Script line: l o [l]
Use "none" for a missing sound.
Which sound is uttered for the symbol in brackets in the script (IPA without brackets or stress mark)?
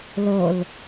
l